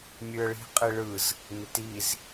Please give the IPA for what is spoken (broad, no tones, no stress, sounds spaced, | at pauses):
mʲ ʉ ə̯ ɭ i̤ qʼ i ɭ ɯ z | n ɪ t i z